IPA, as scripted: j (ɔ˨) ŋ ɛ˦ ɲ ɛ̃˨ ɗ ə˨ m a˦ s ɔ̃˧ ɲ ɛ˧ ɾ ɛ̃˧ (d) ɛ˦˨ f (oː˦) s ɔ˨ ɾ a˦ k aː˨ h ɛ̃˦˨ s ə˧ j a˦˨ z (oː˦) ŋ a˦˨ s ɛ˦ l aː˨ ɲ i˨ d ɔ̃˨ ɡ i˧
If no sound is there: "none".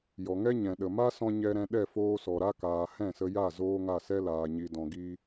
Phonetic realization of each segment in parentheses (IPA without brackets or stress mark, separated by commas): ɔ˨, ɗ, oː˧, oː˦